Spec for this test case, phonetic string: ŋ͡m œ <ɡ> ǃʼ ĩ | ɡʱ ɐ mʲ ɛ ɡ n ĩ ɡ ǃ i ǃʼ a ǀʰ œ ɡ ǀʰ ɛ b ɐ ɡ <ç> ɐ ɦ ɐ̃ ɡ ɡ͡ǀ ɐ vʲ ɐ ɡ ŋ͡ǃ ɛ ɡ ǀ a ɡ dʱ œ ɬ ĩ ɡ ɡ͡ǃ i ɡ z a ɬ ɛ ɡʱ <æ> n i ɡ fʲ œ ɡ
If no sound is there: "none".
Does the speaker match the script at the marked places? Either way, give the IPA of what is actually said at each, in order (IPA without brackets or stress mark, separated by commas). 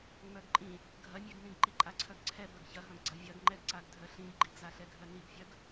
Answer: ɡ, ç, œ